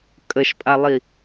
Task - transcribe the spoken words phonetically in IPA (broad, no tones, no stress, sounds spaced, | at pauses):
kʼ ə ʃ pʼ a lˠ i